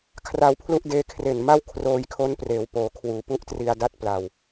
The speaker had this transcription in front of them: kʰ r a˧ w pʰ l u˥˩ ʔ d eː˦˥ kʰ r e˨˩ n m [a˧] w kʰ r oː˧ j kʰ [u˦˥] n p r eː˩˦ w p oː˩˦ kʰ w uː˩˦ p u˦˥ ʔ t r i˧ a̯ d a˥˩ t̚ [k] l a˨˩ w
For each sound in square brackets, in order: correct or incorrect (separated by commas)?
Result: incorrect, incorrect, incorrect